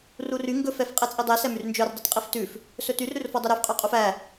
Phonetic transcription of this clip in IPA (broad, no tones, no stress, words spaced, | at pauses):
rury ŋɡɵf ɛfqʼet͡sʼidˤe sɛmyrnd͡ʒœr dˤʉtqʼiftʉf | sɵtyr ɾʉrfɔdˤœɾʉf qʼœqʼufæ